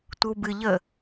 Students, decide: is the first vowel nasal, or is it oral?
oral